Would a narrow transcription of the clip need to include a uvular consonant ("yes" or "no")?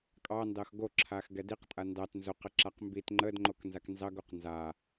yes